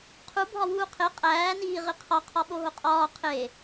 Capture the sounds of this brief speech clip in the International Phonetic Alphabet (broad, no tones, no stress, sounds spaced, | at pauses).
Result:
qʰ u bʱ ɒ w uː qʰ e qʼ æː n iː ʁ i qʰ ɒ qʰ ɒ ɓ o ɦ o qʼ ɒː qʰ e